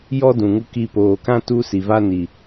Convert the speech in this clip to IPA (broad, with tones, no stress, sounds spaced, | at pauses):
j ɔ˦ d ũ˨ ŋ u˧ k i˧ p oː˨ k ã˦ t u˦ s i˨ v a˦ n i˨